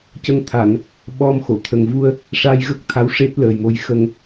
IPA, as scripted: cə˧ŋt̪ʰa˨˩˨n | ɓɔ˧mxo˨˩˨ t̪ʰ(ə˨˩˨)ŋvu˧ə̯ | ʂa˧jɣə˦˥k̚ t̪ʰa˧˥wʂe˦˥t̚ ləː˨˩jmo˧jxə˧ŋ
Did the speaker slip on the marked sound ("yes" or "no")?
yes